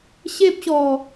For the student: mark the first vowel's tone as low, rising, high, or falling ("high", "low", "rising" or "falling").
high